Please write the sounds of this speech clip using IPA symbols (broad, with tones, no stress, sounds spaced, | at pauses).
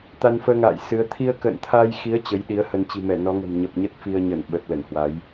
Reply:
t̪ a˧ n f əː˧ ŋ a̰ː˧˨ j s ɨ˨˦ ə̯ t̪ʰ i˧ ə̯ k ə̰ː˧˨ n t̪ʰ a˧ j x i˨˦ ə̯ t͡ɕ ə˨˦ j ɗ i˨˦ ə̯ h ə˧ n t͡ɕ i̤˨˩ m ɛ˧˩ n ɔ˨˦ ŋ ə̤˨˩ m ɲ ə˨˩ p̚ ɲ ə˦˥ t̚ f i˧ ə̯ ɲ ə˧˩ n ɓ ə˨˩ t̚ l ə˧˩ n h w a˨˦ j